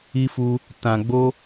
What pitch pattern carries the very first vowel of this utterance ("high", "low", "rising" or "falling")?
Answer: high